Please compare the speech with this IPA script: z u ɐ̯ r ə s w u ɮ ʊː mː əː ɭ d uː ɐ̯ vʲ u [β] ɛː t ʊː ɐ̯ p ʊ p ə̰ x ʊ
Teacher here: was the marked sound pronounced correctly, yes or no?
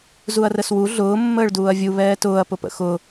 yes